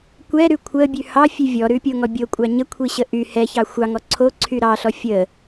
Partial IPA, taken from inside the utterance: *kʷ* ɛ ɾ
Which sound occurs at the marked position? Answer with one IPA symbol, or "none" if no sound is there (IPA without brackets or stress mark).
kʷ